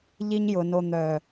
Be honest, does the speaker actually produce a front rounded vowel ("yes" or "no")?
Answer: yes